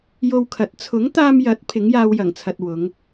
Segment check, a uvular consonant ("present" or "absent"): absent